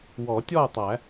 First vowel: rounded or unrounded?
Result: rounded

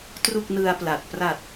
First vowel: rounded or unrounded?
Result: rounded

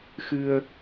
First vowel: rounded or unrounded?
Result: unrounded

